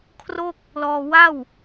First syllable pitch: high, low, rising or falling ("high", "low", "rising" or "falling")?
falling